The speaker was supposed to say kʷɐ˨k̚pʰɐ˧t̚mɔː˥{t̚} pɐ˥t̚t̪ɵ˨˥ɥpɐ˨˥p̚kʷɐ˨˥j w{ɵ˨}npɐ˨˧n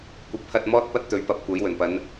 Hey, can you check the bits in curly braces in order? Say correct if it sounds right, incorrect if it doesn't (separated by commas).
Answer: correct, incorrect